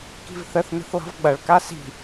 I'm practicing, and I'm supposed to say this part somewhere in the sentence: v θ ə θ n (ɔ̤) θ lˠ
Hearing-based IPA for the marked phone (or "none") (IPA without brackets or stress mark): ə̤